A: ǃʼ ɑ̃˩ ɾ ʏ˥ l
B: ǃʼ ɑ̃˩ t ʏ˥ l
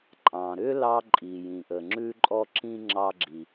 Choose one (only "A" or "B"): A